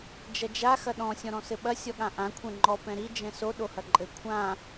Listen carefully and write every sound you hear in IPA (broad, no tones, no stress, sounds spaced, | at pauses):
d͡ʒ ɐ d͡ʒ a x ɐ ɗ ɔ̃ sʲ ɔ̃ ɾ ɔ̃ s ɘ ɓ ɐ sʲ ɔ ɠ ã ʔ ã kʷʰ ɛ̃ ŋ͡ǃ ɔ p ɛ̃ ɾ i d͡ʒ ɛ̃ s o ɗ o h ɐ ǃʼ ɘ kʷʰ ã